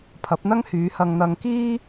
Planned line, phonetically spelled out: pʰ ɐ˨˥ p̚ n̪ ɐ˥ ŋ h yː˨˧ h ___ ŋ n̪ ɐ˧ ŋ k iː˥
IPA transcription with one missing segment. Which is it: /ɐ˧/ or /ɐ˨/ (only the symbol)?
ɐ˧